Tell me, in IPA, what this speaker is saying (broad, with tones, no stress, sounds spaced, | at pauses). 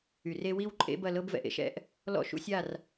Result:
y˨ r e˦ w i˦ w ǃʼ ḛ˦ b ɐ˦˨ l ɤ˦ b v ɛ̰˨ ʔ ḛ˦ ʃ ɛ̰˦ ʔ | l ɔ̰˦ ʃ ṵ˨˦ sʲ a˦˨ r